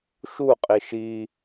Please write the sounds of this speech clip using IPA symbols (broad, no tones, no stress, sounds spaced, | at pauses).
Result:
ʃ u qʼ i ʃ i